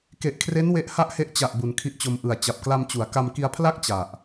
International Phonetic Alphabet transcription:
k e˨˩ ʔ kʰ r e˦˥ n w e˦˥ ʔ h a˦˥ ʔ h e˦˥ ʔ t͡ɕ a˨˩ ʔ b u˨˩ n kʰ i˦˥ ʔ t͡ɕ o˧ m ʔ ɯ˨˩ a̯ t͡ɕ a˨˩ p̚ k l a˧ m t͡ɕ u˩˦ a̯ k a˧ m k i˧ a̯ pʰ l a˥˩ k̚ t͡ɕ a˨˩ ʔ

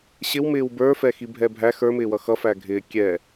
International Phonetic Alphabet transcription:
ɕ ɪ w m ɪː w b ə˞ f ɛ x i bʱ ɛ bʱ æ x ə˞ m ɪː w ʌ x ʌ f æ ɡʱ ɪː kʲ ɛ

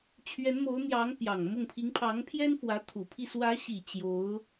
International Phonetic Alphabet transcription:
t͡ɕʰ ɥ ɛ˧˥ n m o˧˥ ʊ̯ n̪ j ɑ˧˥ ŋ p j ɑ˨˩ ŋ m ʊ˥˩ ŋ pʰ i˧˥ ŋ pʰ ɑ˧˥ ŋ pʰ j ɛ˥ n f w ä˧˥ t̪ʰ u˨˩ pʰ i˥˩ s w ä˧˥ ɕ i˨˩ t͡ɕ j o˧˥ ʊ̯

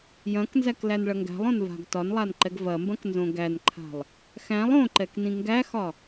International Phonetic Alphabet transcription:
j ɐ̃ k n z æ k l æ n ɭ ɐ ŋ ɡ æ̤ lˠ õ n v a̤ ɡ t ɒ n lˠ a n ǃ ɛ ɡ v ɐ m b ɐ̃ k n z õ ɡ æ n ǃʰ a̤ lˠ | x æ̃ lˠ õ ǃ ɛ k n ĩ ŋ ɡ æ x ɒ

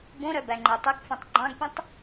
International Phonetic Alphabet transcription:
b õ ɾ œ b æ ŋ͡ǃ e tˤ y k f ũ tˤ ɡ͡ǃ ɑ̃ ɡ pʲ ẽ tˤ

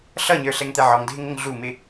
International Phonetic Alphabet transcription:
ɬ ʌ ɲ ə˞ ɬ ɛ ŋ t̪ ɛ ʕ ɔ ŋ dʱ ɪ ŋ ə ŋ ɮ u m ɪ

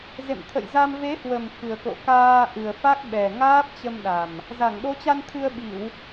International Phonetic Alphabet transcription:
z ḛ˧˨ m t̪ʰ ə̰˧˨ j z a˧ m v e˨˦ h w ə˨˩ m x ɨ˨˩ ə̯ k o̰˧˨ k aː˧ ʔ ɨ˨˩ ə̯ f a˦˥ k̚ ɓ ɛ˨˩ ŋ aː˦˥ p̚ t͡ɕ ə˧ m ɗ a˨˩ m | z a˧˩ ŋ ɗ o˨˦ t͡ɕ a˧ n t̪ʰ ɨ˧ ə̯ ɓ i˧˩˨ w

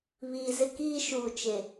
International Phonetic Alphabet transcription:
β iː˨ z ɪ˦ k iː˦ ʃ uː˨ t͡ʃ e˨

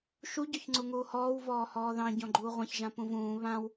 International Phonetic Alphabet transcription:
ʃ u ɟ ɔ ç ŋ͡ǀ u ŋ uː h ɔː w v ɔː h ɔː ð ɑ̃ ɟ ɔ̃ ɡ͡ǃ uː ʁʷ ɑ̃ ç ʒ ã p ũ v ũː β ã w

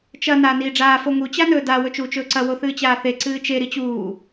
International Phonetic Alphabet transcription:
t͡ʃ ɐ n aː n iː ɖ͡ʐ aː f o ŋ u t͡ɕ a n ɵː d a w ɵ t͡ʃ uː t͡ʃ ɵː ǀ ɐ w o θ ɨː t͡ɕ aː θ e ǀ ɨː t͡ʃ e ɾ i t͡ɕ uː

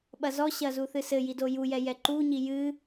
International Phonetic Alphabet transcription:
ɓ ɐ z ɔ ɕ ɐ z u θ ɨ s ɘ j i d o j u j ɛ j ɛ ǃ u ɲ i j ɨ

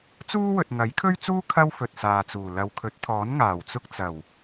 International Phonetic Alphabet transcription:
t͡s uː˥ w ɵ˨ t̚ ŋ ɐ˨˥ j kʰ ɵ˥ ɥ t͡s uː˥ kʰ ɐ˥ w f ɵ˨ t̚ s aː˨ t͡s uː˨˩ l ɐ˨ w kʰ ɵ˨˥ t̚ t̪ʰ ɔː˨˥ n ŋ aː˨˩ w t͡s ʊ˧ k̚ t͡s ɐ˨˩ w

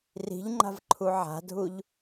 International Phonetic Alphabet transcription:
r i̤ ʎ ŋ͡ǃ a̤ v ǃʰ u ʕ a̤ dʱ u ʎ

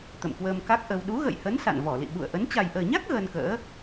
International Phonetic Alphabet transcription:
t̪ ə̰˧˨ m k w əː˧ m k a˦˥ k̚ ʔ ə˧ w ɗ u˨˦ ɣ ə̰˧˨ j h ə˨˦ n s a̰˧˨ n v ɔ˧˩ l ḭ˧˨ ɓ ṵ˧˨ ə̯ ʔ ə˨˦ n t͡ɕ a˨˩ j ʔ əː˨˩ ɲ a˦˥ k̚ ɣ əː˧ n k ə̰ː˧˥

